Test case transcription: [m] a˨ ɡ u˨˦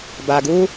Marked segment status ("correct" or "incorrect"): incorrect